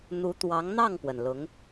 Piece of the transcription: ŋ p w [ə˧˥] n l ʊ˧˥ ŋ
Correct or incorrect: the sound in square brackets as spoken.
incorrect: ə˩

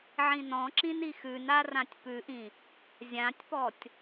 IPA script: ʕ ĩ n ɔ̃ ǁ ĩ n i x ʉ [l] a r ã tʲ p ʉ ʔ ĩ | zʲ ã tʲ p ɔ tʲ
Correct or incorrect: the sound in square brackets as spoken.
incorrect: n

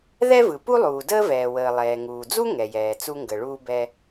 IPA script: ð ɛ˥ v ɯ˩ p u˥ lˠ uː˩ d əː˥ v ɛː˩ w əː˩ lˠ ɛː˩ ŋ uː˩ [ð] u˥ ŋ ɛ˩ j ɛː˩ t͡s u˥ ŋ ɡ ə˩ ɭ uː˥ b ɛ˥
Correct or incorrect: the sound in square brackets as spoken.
incorrect: d͡z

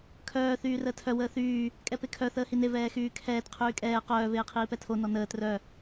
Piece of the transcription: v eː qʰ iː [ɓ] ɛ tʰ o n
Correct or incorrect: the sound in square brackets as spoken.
incorrect: p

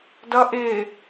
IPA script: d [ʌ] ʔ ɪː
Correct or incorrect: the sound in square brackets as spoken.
correct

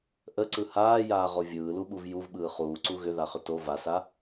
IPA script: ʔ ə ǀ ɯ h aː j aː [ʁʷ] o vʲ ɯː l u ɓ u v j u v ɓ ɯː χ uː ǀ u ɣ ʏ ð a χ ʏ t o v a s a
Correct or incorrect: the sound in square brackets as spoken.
incorrect: ʁ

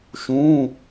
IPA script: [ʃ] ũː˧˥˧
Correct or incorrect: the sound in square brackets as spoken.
correct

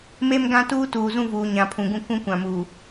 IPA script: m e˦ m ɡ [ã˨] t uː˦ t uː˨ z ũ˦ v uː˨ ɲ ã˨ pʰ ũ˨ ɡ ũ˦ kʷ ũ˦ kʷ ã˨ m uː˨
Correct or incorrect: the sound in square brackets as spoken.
incorrect: ã˦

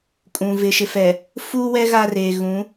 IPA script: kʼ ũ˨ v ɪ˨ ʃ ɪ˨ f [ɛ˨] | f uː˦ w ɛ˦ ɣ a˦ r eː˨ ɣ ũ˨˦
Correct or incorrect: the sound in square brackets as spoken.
correct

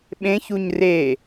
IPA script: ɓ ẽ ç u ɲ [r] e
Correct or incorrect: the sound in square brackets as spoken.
correct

